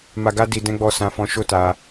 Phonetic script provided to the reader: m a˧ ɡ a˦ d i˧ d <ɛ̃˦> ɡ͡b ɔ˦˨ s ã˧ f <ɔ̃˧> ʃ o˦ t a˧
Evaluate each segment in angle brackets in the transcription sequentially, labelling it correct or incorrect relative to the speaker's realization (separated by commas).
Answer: correct, correct